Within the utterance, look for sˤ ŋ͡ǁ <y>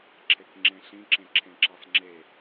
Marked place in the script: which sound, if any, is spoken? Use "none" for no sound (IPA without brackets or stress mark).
e